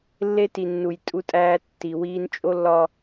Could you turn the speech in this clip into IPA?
lːe˦ti˨nːu˨j tʼu˦tʼæː˦ tːi˨wiː˦n t͡ʃʼo˦lːɒ˦

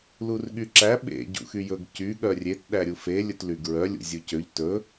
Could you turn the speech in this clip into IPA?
lurɠyǁæ ɓḛ ɟṵxyjɵɡ cy ɠœrʲet ɗæɾʲufe lʲɵtlyɡɹœ lʲṵzʲucøʎ tɵ

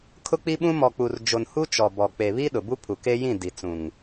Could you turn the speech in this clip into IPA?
kʰʊ˦k͡pi˦ɓũ˦ mɔ˨k͡pu˨rd͡ʒo˨nhu˦ t͡ʃɔ˨bɔ˨ k͡pe˨βi˦ ɗʊ˨bu˦ pʰu˨ke˦jĩ˦˨ di˨t͡sũ˨ŋ

